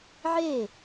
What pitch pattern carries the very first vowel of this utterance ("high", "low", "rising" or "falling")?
falling